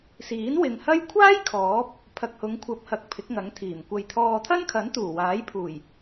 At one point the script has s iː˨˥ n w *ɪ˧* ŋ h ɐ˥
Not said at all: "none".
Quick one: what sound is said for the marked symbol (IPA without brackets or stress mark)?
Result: ɪ˨